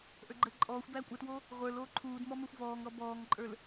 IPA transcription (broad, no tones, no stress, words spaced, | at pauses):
ʔə˞ɡ͡ǃəːǃʼɔːxʷbæː kʷʼətwo | ʁʷə˞l oːǃʰuːdmɔ mə˞xʷvɔːŋɾɔ bɔːŋǃʼə˞l